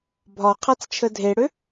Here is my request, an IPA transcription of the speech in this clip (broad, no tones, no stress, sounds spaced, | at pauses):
bʱ ɒ qʰ a t͡s t͡ʃʰ ə dʱ e ɽ ø